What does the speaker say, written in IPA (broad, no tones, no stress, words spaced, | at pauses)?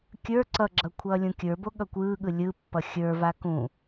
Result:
kʲə˞ ǀʌɡ͡ǁʌ kʷʰʌːlʲũkʲə˞bo ɠʌkʷɯːɠɯ lʲɯpːʌ xʲə˞va kũ